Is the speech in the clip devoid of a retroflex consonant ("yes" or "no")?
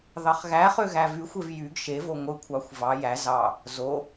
yes